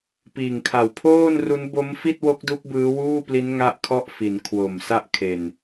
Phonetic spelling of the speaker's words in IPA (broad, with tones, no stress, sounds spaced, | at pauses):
p iː˨˩ ŋ kʰ a˨˩ w pʰ oː˥˩ n r u˦˥ n b o˦˥ m f i˥˩ t̚ w o˦˥ k̚ d u˦˥ k̚ b ɯː˦˥ w uː˥˩ p l i˦˥ n ŋ a˥˩ ʔ kʰ ɔ˥˩ ʔ f i˩˦ n kʰ w o˨˩ m s a˥˩ ʔ kʰ e˨˩ n